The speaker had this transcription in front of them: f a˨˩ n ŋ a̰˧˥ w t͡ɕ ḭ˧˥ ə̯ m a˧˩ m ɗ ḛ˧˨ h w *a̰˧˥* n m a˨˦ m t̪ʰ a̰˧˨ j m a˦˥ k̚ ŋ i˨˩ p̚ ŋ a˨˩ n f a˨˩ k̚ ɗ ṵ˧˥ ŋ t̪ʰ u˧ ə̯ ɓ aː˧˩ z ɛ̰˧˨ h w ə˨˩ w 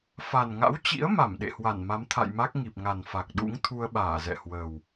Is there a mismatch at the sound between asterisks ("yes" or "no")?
yes